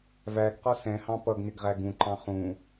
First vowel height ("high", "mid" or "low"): low